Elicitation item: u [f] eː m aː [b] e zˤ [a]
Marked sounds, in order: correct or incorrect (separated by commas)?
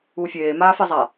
incorrect, incorrect, correct